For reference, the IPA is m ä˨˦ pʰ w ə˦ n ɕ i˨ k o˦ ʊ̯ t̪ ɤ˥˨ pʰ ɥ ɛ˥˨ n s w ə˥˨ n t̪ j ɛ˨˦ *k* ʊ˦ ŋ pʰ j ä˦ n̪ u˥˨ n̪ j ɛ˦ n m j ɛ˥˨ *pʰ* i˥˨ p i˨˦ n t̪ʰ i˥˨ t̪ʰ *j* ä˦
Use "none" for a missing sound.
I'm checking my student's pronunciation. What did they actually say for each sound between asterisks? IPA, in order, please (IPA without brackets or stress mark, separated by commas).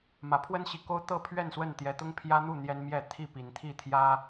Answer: t̪, t̪ʰ, j